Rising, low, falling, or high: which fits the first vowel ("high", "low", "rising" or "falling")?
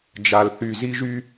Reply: low